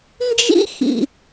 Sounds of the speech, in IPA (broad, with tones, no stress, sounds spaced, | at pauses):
n d͡ʒ ḭ˥ x ḭ˩